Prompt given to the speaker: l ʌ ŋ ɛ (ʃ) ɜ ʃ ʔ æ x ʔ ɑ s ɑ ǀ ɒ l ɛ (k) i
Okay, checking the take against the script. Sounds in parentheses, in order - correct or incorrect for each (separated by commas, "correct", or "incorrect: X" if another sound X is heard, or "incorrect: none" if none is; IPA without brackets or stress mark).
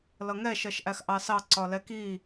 correct, correct